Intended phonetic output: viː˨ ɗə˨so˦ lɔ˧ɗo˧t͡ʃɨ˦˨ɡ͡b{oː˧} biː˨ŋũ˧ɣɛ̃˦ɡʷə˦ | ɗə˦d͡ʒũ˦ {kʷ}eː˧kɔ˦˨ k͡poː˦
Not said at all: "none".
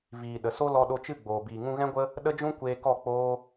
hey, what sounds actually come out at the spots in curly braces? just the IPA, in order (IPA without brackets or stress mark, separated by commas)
oː˨, kʷ